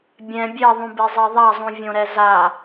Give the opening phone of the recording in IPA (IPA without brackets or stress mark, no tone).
bʲ